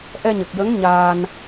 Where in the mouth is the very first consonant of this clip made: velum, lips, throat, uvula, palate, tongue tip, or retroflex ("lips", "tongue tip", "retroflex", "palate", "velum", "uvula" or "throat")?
throat